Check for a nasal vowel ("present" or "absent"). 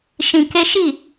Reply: present